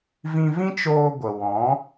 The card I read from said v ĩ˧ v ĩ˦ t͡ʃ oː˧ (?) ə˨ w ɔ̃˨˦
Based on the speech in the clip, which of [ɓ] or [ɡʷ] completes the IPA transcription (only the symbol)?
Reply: ɡʷ